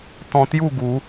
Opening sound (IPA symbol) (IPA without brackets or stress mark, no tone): t̪